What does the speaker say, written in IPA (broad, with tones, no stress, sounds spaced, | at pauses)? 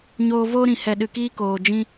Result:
ɲ oː˧ v oː˦ ɾ ĩ˨ h ɛ˨ ɗ ɨ˨ k iː˧ k oː˨ d͡ʒ ĩ˧